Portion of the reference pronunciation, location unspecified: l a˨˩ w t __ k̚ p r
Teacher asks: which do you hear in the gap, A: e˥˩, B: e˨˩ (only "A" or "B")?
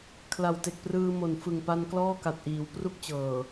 B